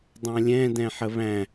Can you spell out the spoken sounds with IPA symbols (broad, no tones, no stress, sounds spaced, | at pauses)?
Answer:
dˤ ã lʲ ɛ̃ d ɛ̃ ħ ə β æ̃